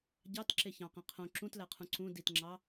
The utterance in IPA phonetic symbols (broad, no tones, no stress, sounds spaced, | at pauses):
ɟ ɑ t ǁ e ç ɑ̃ q ĩ qʰ õ ǁ ũ t l æ qʰ ũ ǀ ũ d i t ŋ͡ǁ ɑ